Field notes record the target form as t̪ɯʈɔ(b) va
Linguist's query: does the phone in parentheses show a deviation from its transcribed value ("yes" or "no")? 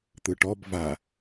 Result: no